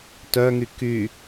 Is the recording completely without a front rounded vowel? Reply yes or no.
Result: no